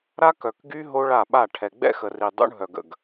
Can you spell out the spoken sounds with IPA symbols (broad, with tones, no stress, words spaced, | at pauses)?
ɾa˦kœ˨kɡy˦ ɦo˦ɭa˦˨ɓa˦˨ ʈʰɛ˨ɡ͡bɛ̰˦xə˨ri˨ dˤṵ˦ɳɦœ˨ɡə̰˨ɡ